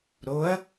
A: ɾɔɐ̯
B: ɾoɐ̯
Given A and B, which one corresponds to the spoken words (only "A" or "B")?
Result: B